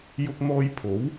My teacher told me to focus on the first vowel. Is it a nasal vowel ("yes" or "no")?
no